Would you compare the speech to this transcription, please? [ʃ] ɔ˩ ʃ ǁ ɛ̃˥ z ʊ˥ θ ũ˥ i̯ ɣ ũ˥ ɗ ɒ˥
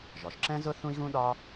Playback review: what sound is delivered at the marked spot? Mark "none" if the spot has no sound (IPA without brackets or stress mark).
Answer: ʒ